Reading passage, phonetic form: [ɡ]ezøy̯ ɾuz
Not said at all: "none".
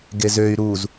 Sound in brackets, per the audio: ɡ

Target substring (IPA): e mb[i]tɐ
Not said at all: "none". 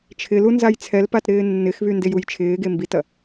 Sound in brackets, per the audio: i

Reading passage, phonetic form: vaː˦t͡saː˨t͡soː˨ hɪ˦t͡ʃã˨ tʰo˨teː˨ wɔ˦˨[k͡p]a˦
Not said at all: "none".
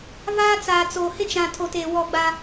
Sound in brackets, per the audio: ɡ͡b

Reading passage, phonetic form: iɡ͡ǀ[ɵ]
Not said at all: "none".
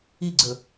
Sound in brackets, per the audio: ɵ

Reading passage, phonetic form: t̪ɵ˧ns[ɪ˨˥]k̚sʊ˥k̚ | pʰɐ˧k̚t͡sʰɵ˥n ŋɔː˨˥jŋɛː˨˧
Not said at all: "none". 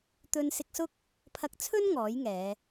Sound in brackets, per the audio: ɪ˧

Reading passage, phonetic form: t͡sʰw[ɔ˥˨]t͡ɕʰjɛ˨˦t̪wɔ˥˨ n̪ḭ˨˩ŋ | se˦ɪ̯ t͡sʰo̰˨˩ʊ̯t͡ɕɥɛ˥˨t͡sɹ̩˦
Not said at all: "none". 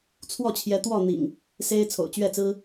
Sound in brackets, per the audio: ɔ˥˨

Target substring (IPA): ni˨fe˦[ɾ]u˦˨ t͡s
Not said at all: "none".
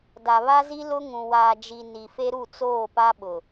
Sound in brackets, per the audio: ɾ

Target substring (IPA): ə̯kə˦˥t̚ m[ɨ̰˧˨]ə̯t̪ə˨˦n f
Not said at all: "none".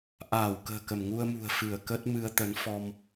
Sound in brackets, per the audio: ɨ˧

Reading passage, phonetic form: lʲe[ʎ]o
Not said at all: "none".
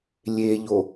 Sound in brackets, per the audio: ʎ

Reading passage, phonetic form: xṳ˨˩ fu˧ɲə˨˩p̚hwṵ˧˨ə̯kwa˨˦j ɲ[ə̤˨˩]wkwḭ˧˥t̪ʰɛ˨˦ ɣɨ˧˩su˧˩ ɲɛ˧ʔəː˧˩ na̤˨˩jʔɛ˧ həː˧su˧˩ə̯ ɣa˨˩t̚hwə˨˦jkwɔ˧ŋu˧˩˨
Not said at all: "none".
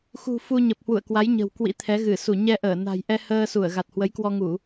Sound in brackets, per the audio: ə̤˨˩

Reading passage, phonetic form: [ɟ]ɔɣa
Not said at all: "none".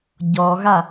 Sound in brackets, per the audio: ɟ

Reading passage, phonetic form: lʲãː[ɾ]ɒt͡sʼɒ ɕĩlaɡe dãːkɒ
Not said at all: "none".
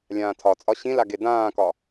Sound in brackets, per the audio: tʰ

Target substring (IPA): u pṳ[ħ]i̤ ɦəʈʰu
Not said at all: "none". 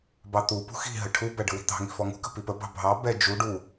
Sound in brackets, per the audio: x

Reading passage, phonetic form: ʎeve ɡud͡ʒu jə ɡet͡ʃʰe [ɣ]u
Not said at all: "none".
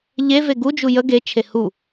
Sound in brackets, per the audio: h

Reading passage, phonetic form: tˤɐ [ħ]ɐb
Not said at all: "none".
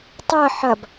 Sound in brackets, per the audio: ħ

